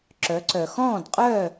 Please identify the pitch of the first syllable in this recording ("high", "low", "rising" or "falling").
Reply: rising